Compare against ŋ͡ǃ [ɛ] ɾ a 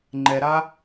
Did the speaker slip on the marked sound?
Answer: no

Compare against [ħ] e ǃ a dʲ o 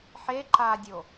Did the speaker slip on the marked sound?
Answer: no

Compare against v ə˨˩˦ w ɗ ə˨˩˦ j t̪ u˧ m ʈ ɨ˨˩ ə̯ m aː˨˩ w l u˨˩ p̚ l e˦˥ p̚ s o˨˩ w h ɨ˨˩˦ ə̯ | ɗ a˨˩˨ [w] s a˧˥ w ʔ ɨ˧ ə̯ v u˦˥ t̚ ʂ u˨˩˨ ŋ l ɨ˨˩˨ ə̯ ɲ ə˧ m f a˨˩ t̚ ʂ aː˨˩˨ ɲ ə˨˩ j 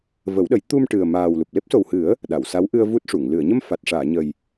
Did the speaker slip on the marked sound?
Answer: no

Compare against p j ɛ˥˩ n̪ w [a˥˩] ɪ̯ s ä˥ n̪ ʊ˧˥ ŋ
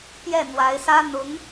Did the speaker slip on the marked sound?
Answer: yes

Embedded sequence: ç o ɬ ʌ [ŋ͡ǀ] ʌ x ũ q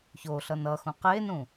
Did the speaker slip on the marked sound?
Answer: yes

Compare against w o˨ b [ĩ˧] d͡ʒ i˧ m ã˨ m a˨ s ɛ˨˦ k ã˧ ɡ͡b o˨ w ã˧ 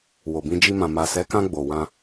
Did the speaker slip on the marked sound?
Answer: no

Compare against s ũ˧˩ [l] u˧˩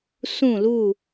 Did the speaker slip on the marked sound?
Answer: no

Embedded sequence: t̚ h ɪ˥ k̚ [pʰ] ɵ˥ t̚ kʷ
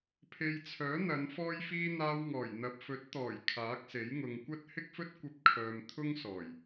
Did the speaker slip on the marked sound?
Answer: yes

